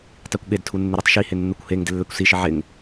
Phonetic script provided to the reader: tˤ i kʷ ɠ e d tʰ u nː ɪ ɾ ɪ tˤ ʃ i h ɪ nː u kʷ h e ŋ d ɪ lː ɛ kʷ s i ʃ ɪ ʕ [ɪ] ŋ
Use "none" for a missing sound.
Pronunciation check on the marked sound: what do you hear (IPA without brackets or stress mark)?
ɪ